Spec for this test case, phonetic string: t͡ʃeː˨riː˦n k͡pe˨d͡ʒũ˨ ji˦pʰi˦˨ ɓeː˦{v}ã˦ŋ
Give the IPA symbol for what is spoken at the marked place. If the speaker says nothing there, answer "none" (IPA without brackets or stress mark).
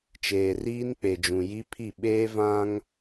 v